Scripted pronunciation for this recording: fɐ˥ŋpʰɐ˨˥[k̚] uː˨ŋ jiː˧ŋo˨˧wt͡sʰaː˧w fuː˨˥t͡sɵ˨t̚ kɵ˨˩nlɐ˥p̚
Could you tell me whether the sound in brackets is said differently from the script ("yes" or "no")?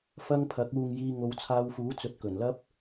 no